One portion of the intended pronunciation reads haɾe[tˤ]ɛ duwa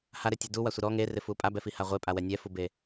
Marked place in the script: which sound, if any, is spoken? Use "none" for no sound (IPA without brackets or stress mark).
tʲ